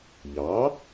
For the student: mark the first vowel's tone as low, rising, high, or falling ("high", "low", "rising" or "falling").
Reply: rising